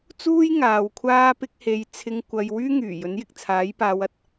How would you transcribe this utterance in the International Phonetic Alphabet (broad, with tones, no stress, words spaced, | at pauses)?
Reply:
t͡suː˥j ŋaː˨˧w kʷʰaː˥pɪ˥k̚ he˨˧jt͡sʰɪ˧ŋ kʷɐ˧j wyː˥ŋyː˨˩ jɵ˨˥njɪ˨k̚t͡sʰaː˨˥jpaː˨˧w ɐ˨t̚